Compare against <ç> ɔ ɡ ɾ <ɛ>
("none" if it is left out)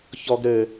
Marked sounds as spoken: ç, ɘ

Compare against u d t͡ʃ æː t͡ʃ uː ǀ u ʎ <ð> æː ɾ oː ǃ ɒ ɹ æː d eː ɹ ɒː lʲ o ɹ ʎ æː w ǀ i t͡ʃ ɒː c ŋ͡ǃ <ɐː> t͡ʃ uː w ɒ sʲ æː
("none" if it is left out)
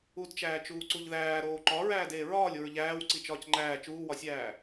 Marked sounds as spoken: ð, æː

